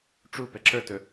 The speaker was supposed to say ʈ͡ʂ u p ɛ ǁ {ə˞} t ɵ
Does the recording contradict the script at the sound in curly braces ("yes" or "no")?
no